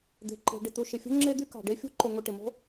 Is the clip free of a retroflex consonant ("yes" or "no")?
no